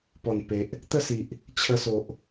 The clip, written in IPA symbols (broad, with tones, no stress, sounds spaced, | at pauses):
p ɔ˨˩ n p e˨ ʔ | t̪ ə˥˧ s i˨ ʔ | t͡ɕʰ ə˧ s o˨ ʔ